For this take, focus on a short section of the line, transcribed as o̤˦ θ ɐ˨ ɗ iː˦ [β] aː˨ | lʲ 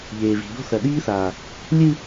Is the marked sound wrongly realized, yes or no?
yes